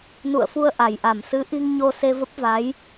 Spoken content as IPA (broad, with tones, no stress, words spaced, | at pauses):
nṵ˧˨ə̯fu˧ə̯ ʔa˧˩jʔa˧˩m sɨ˨˦ʔi˧ŋɲo˧ se˧və˦˥p̚va˨˦j